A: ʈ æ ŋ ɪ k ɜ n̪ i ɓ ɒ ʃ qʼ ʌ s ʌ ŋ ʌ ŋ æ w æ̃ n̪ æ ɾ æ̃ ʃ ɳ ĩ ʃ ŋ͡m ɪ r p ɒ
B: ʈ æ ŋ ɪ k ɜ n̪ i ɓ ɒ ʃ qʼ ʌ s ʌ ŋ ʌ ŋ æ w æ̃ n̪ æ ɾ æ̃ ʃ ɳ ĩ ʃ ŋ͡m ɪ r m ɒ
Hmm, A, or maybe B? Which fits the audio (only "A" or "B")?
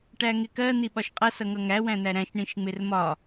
B